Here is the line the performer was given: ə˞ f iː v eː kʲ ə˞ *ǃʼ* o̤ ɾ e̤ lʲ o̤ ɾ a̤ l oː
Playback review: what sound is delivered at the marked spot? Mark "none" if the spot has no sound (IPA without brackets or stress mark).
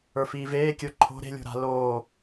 ǃʰ